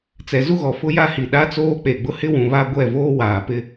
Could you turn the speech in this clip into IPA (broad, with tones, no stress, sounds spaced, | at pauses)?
t͡s ɛ˨ z u˦ ɣ ɔ˨ f ʊ˦ j a˦ h i˨ ɗ a˦ t͡s oː˦ k͡p e˨ ɡ͡b ʊ˦ h ɪ˦ w ũ˨ β a˦ ɡʷ ɛ˦˨ v oː˦ w aː˨ p ɪ˦